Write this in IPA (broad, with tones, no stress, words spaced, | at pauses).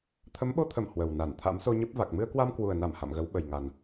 t̪ʰə˨˦mɓo˧t̪ʰə˧˩m hwə˨˩wna˧˩n t̪ʰa̰˧˥mso˧ɲə˦˥p̚va˨˩k̚ mɨ˧ə̯kwa˧mkwu˨˩ə̯na˧˩m ha̰˧˨mɣə˨˦w ɓə˨˩jŋa˨˩n